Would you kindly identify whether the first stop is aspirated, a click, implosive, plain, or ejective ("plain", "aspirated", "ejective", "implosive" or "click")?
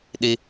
implosive